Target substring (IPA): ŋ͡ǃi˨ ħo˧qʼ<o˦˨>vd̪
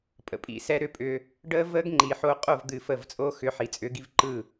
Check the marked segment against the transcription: correct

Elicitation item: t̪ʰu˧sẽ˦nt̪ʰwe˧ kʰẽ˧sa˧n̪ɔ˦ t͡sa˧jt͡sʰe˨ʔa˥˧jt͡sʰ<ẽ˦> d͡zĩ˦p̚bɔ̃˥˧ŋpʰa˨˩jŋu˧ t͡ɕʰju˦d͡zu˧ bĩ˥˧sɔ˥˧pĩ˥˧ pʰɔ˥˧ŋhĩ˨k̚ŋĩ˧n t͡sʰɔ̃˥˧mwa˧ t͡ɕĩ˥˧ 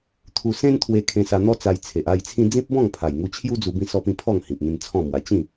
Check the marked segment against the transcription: incorrect: ĩ˦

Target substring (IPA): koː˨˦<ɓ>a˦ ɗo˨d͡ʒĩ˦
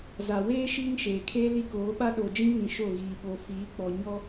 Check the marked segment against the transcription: correct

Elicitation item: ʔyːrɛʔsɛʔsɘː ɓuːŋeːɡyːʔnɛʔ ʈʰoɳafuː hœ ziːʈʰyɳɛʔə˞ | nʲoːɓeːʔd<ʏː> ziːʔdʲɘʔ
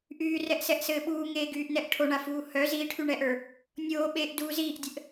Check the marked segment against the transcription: incorrect: uː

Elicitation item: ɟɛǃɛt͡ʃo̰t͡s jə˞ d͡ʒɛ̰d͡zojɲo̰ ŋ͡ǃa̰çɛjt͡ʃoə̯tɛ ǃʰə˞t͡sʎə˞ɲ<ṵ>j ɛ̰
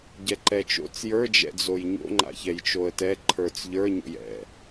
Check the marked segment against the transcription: incorrect: o̰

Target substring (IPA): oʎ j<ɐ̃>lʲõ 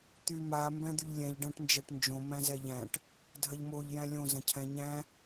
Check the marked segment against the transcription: incorrect: æ̃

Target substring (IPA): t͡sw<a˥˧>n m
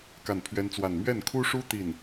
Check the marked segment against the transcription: correct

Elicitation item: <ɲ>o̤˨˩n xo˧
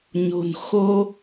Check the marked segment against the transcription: correct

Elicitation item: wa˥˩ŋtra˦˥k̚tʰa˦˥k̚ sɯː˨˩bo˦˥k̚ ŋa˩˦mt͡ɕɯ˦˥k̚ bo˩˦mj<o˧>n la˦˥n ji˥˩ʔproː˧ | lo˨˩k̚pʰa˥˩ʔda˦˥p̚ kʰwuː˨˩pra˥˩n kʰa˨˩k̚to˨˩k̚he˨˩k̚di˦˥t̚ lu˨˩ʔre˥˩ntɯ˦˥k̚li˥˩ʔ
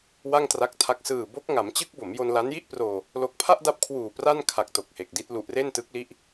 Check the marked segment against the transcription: correct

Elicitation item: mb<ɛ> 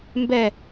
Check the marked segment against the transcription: correct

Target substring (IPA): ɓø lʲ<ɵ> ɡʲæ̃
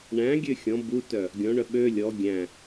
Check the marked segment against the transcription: incorrect: ɔ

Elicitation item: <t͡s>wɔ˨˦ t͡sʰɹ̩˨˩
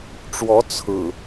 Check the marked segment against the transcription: incorrect: ʈ͡ʂ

